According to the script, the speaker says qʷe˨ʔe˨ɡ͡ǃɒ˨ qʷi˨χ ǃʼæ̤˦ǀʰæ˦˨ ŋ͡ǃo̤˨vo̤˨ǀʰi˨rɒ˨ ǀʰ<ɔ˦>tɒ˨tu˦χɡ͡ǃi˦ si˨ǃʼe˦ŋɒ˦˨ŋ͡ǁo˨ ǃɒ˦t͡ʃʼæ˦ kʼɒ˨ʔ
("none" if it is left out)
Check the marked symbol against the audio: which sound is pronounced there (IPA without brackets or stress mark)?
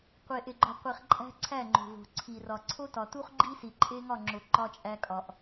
o˦